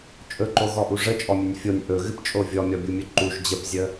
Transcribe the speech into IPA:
t͡ʃʼɵǃoɣɔʔu ʐət͡ʃʼɔmʲɵnʲ fʲonʲ ʔɵɣɨpt͡ʃʼo vʲɔmʲɔbʲumʲɵ ǃuʒ d͡ʑəpzʲə

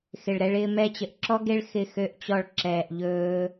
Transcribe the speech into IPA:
xɪ˨ɭɾɛ˧ɭɪː˧ mɛ˧t͡ɕə˨ʔǁɔ˦ɡe˦ɭ xɪ˦˨xø˦ʔt͡ɕɔ˦˨ɭ ǁɛː˨ʔ ʎɵː˧

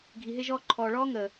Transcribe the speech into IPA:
ɡʱi˨ɦe˦ʒɔː˦ ǃʰɔː˨ɭɔː˦ŋəː˨

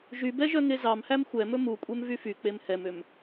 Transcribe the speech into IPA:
ʒybɛʒœ ŋezɑmhæm xʷɛmɵ mukʷʼɛm vyfyk͡pem hɛmøm

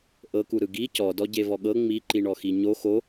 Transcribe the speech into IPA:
ʔɤkuɾɯ ɡi cɔdɔ ɟevɔɠɤ ŋ͡miǃiɳɔxi ɲo xo

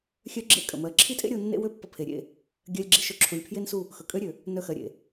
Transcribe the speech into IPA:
xʲœ˦ɡ͡ǁḛ˦˨ kʼə̰˨mɜ˨˦ ǁʰi˦tʼḛ˦ɾʲo˧ nːḛ˦wø˦pːə̰˧ pʰe˨ɾʲḛ˦˨ | ɡʲɜ˧lʲɡ͡ǁi˧ ʃø˧ǁʰu˨lʲpʰje˦nsu˦˨ | xɵ˨kʼø˦ɾʲø˨ | nœ˧xɜ˨ɾʲḛ˨

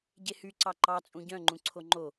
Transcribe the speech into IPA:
ɟehy ǀɑǃɑt͡sʼũ ɟœ̃ŋ͡ǃũ ǀʰoŋ͡ǃo

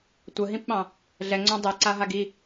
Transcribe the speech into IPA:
tʷəɦĩpɓɑ̃ | ɮɛŋ͡ǀõ dˤeǀaɦaɡ i

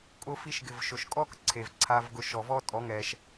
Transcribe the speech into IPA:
kʼʊ˧ fi˧ʃɡɪ˨v ʃʊ˨ʃkʼɔ˦k ǀʰe˨vǀʰa˧vɡʊ˧ ʃɔ˨vɔ˦tʼɔ˨˦ŋɛ˧ʃ

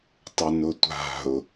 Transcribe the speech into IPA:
tˤʊnʊtʷa̤ʊ̯

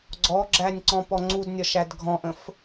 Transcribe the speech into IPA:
ɡ͡ǀɔɡ͡ǁænʲ ǀɔ̃pɔŋ͡ǀudnʲɒʃ ædɡʱɔ̃ʔə̃f

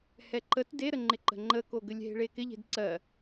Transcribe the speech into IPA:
hɛǃət deɾəŋ͡ǃɪ ǃə̤ŋ͡ǃəko ɡəlʲɦe̤ɭekɪ ʎe̤dǀɜ

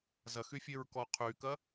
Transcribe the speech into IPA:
zɐxyfʲeɹ kɔqʰykɐ

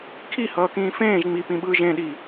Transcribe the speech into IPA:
kʰihʌːkĩː fẽːʒ ŋ͡mipĩɓɯːʒ ẽɗi

